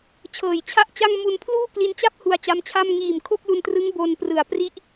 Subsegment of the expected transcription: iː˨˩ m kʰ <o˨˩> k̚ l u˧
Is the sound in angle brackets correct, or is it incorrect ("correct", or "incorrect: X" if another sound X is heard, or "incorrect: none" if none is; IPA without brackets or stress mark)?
incorrect: o˥˩